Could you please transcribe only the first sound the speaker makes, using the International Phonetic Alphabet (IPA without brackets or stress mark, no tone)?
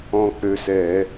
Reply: ɔ̃